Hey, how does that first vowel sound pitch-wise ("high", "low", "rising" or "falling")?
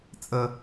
high